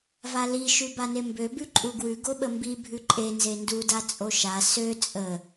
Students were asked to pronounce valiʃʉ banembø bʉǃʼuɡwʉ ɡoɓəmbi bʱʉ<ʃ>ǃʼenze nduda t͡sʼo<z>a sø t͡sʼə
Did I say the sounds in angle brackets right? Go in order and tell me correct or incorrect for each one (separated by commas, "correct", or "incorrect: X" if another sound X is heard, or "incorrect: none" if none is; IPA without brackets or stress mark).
incorrect: none, incorrect: ʃ